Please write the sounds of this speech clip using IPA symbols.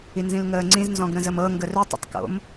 i n z ĩ l ŋ əː ŋ͡ǀ ĩ z n z ɔ̃ ɡ ɾ ə̃ z ə m ɤ ŋ ɡ ə r ʏ tˤ ə̰ tˤ k o̰ m

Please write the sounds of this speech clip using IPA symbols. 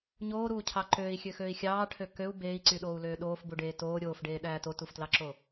ɲ oː ɾ uː cʰ ɑ ǃ øː i̯ xʲ ø x øː i̯ xʲ ɑː ʈʰ ø k ø u̯ b eː i̯ ǀ y ɗ oː u̯ l øː ɗ oː f b u ɖ eː t oː ɾʲ oː f ɖ eː ɗ æː t o t u f t l ɑ ǁ o

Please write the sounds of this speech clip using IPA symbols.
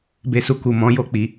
b e˧ s u˨ k u˨ m ɔ̃˨˦ j o˦˨ k͡p i˨˦

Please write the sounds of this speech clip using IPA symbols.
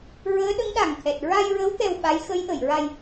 ɹ əː˧˥ ɗ ə˧˥ ŋ ɗ a˨˩ ŋ t̪ʰ ɛ˨˩ t̚ ɹ a˧ j ɹ ə˧˥ w t̪ ɛ˧ w ɓ a˧˥ j x ə˧˥ j ʔ ə˨˩˨ j ɹ a˧ j

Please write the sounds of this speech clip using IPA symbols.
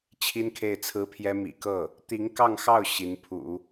t͡ɕʰ i˥ n kʰ e˥˩ ɪ̯ t͡sʰ ɹ̩˥ pʰ j ɛ˥ m ḭ˨˩ k ɤ˥˩ | t̪ i˧˥ ŋ k ɑ˥˧ ŋ x ɑ˥˩ ʊ̯ ɕ i˧˥ n pʰ ṵ˨˩˦

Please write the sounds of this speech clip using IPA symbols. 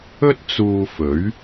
ɵ˥ t̚ t͡s uː˧ f ɵ˨˥ ɥ

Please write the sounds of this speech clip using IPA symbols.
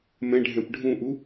m ɛ̃ ɖʱ ɛ̃ p ɖʱ ũ ʔ u

